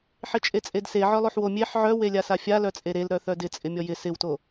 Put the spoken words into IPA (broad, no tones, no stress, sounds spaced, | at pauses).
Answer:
ħ ɪ t͡ʃʼ e t͡sʼ e d s e ʕ œ lˠ o ħ w o mʲ e ħ ʕ œ w e lʲ a s a fʲ a l œ t͡sʼ e ɾ e l ɾ œ θ œ d ɪ t͡sʼ ɪ mʲ ɔ j ɪ s ɪ w t o